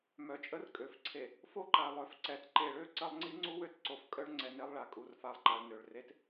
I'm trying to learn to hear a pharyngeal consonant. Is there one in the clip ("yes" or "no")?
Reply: no